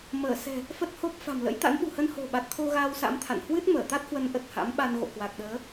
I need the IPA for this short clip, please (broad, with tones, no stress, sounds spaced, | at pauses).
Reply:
m əː˧˩ s ɛ̤˨˩ | f ə˦˥ t̚ h o˦˥ p̚ f a̤˨˩ m l ə̰˧˥ j t̪ a̰˧˥ n ɓ ṳ˨˩ h ə˧ n h o̤˨˩ ɓ a˨˩ t̚ t̪ʰ o˧ ɣ aː˧ w s a̰˧˥ m t̪ʰ a̰˧˨ n h w ɨ˦˥ t̚ m əː˧˩ t̪ a˦˥ t̚ h w ə˨˦ n ʔ ə˨˩ t̚ h a̰˧˥ m ɓ a˧ n ɣ o̰˧˨ k w a˨˩ k̚ ɗ əː˨˦